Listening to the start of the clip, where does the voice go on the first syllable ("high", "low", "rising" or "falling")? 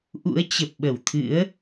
rising